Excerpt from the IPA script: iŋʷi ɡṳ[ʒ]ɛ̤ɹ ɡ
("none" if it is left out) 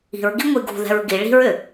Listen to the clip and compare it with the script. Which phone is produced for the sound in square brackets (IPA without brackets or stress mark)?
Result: ð